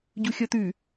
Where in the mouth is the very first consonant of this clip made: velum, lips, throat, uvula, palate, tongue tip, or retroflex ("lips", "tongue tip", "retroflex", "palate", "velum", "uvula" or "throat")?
palate